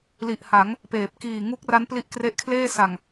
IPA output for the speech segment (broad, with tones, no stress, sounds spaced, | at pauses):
l i˨˩ ʔ h a˩˦ ŋ | p eː˨˩ p̚ k iː˨˩ ŋ u˦˥ k̚ r a˦˥ n p l i˦˥ ʔ k r e˦˥ ʔ kʰ l eː˥˩ s a˨˩ ŋ